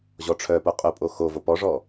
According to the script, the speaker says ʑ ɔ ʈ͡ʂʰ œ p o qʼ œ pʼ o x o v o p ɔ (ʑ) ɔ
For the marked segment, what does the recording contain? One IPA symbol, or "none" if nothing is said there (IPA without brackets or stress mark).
ʐ